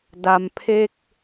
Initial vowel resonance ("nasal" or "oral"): oral